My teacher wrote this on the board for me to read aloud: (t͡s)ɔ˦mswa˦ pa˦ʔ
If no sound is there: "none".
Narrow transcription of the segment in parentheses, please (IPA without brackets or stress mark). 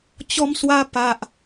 t͡ɕ